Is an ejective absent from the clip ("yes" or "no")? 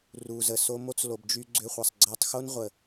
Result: yes